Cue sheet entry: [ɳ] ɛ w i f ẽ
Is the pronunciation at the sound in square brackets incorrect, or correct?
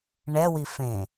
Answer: correct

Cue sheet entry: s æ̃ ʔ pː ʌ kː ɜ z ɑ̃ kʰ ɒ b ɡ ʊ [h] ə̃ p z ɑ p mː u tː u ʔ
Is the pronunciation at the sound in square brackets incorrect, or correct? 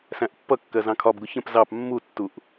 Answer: incorrect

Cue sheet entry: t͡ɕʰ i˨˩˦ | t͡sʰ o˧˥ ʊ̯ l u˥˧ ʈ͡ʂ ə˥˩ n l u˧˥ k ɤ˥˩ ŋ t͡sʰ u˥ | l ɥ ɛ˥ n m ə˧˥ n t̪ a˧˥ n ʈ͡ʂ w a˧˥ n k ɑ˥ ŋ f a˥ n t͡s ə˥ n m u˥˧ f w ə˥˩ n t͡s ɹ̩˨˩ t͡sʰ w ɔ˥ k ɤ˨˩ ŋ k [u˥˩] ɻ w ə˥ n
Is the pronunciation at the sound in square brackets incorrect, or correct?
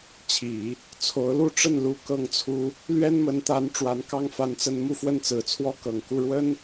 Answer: correct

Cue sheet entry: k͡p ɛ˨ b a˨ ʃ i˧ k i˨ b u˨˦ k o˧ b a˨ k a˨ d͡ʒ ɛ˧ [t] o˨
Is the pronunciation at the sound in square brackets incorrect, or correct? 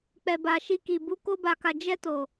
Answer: correct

